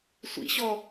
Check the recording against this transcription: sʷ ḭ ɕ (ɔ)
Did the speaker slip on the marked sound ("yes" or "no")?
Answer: no